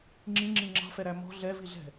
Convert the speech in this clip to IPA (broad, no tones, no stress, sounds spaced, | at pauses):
ŋ͡ǁ ĩ ŋ͡ǁ ĩ ŋ͡ǁ ɑ̤ f ɛ ɾ æ m ɔ̤ ɮ ɛ v i ɮ ɛ̤